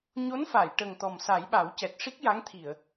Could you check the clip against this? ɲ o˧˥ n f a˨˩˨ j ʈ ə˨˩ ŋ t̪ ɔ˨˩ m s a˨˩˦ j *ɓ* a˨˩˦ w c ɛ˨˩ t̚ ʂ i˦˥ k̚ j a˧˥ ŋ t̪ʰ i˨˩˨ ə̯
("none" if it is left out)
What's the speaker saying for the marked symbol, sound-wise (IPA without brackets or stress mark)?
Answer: ɓ